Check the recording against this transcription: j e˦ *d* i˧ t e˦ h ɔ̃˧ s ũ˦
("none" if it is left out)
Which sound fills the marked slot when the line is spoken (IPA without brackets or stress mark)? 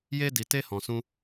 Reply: d